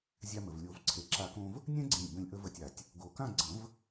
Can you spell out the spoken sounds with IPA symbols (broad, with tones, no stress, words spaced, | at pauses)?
zʲa˧mə˩vlʲo˨˩˦v ǀʰe˩ǁa˨˩˦kõ˧v | nʲɛ̃˥ɡ͡ǀẽ˧˩lʲbə̃˧˩lʲ ʔə˧və˧˩tʲa˩tʲ | ɡo˨˩˦kã˥˨ ɡ͡ǀə̃˨˩˦v